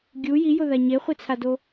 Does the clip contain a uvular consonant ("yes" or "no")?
yes